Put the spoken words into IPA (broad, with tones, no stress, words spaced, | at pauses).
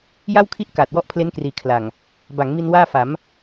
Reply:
ja˥˩wkʰi˥˩ʔ kaː˨˩t̚ wɔ˥˩ʔpʰle˦˥nkriː˩˦ kʰla˨˩ŋ | ba˩˦ŋmi˧n waː˥˩fa˩˦m